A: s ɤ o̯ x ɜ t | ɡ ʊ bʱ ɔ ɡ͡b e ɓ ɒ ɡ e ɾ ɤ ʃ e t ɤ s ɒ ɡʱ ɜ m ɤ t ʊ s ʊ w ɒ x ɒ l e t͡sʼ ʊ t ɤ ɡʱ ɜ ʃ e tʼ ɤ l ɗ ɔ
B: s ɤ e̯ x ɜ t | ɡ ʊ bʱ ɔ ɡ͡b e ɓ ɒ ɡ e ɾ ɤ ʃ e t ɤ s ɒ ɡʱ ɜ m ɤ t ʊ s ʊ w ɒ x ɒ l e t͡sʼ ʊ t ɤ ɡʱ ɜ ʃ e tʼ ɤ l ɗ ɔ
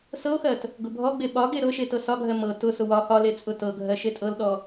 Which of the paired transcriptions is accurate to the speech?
A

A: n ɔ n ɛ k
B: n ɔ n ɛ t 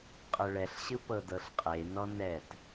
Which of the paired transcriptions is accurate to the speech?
B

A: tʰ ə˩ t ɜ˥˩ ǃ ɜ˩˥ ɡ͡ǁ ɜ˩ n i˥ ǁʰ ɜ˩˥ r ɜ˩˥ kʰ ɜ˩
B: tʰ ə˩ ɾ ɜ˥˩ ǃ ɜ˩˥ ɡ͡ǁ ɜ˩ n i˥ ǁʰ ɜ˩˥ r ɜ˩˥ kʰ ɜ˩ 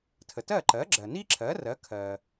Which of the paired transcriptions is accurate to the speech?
A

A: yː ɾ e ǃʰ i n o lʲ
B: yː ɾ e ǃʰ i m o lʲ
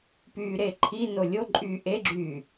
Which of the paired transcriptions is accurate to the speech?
A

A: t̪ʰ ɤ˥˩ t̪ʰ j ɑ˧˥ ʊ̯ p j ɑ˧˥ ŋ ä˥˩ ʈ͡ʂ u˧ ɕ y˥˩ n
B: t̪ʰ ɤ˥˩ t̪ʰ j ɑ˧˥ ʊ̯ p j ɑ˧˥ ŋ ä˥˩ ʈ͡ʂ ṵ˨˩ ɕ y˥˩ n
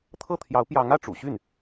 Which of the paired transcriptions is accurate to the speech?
B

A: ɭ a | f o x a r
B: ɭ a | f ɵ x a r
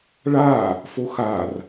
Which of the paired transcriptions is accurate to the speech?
A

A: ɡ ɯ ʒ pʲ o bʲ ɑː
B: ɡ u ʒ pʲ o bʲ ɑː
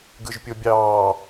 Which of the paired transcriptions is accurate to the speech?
A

